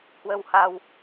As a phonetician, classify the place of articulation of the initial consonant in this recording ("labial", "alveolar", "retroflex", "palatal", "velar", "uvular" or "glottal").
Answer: glottal